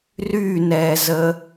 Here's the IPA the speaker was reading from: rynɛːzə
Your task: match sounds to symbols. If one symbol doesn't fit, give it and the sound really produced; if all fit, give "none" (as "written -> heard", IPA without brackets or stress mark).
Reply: none